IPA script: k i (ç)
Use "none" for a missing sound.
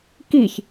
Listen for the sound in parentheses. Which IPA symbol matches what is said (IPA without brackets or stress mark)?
ç